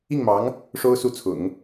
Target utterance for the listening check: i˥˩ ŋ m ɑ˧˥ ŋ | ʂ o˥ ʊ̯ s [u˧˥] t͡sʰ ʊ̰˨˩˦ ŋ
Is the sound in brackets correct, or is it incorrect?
incorrect